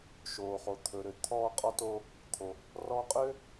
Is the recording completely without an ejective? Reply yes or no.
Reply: no